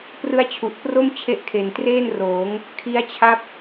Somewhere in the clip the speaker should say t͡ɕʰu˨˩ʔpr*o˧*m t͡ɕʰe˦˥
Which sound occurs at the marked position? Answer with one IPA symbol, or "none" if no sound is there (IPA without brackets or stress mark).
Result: o˥˩